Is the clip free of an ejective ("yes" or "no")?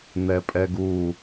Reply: no